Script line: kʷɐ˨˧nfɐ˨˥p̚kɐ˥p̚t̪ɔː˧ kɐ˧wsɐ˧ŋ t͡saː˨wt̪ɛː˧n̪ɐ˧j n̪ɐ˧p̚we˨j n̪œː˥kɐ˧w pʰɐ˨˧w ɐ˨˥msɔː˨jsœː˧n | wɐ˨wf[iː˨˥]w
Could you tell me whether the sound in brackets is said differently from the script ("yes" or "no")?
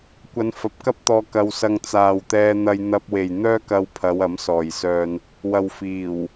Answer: yes